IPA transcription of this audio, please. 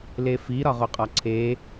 l e f i ɾ ɒ ʁ o qʼ ɒ ǀʰ e

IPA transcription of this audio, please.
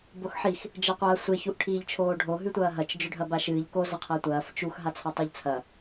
b o x ħ i x | d͡ʒ ɐ qʷ ɐː sʷ e ç u ʔ ʈʰ iː ʎ t͡ʃʰ oː ɖʱ o ɦ ʉ tʷ ɐː ɦ ɐ t͡ʃ d͡ʒ ɵ ɖʱ ɐ b a ʃ ɨː ʎ k o z ɐ qʰ ɐː tʷ ɐː f t͡ʃ u x ɦ a t͡sʰ a tˤ ɵ ʎ t͡sʰ ɐ

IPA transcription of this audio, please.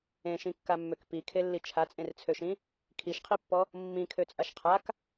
ẽ ʃ ĩ kː a mː ø k p i kʰ e lː i t͡ʃʰ a t͡sʼ ẽ r t͡sʰ ø ʃ ĩ | kʰ i ʃ qʰ i pː ɔ | mː ĩ kʰ ø t͡sʼ a ʃ qʰ a k

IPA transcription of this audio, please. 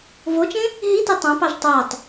v o t͡ʃ ẽ | ɦ i t e tˤ ã p ɑ ʒ tˤ æ tˤ

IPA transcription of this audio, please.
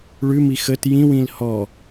ɭ ʉ m i x ə t j ĩ w ĩ l h ɔ

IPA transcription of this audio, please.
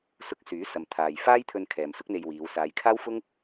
s ʊ˧ k̚ s yː˨˥ s ɐ˨ m t̪ʰ aː˨ j f aː˥ j t̪ʰ ɵ˧ n kʰ ɛː˨ m s ʊ˥ k̚ n̪ e˧ j w iː˨˧ w s aː˨˧ j kʰ aː˥ w f ʊ˥ ŋ

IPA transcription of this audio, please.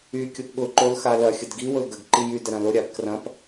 y kʲ ʊ p ɠ ʊ ǃ o l x a l ɐ xʲ ə d ɡ i w ʊ l ɡ ə ɡ ǃ i j y d ə ɾ ɐ̃ l ʊ ɾʲ a b k r ɐ̃ p

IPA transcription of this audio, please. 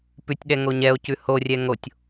p ʉ tʲ ɗ ɛ ŋ o ɲ ɛ o̯ c ʉ h o rʲ ɛ ŋ o tʲ

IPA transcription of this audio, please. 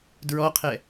d ɹ ɔ qʰ ɛ

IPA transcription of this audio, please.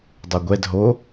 dˤ o ɡʷ ɛ d ɦ o

